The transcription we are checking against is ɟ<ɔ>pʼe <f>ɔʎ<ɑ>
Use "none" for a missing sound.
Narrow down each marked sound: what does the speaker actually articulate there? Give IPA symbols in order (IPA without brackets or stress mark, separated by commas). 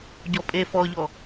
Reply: ɔ, f, ɔ